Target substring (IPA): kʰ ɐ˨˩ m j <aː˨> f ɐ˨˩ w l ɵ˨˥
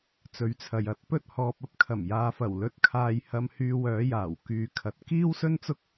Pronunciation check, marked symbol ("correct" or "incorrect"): correct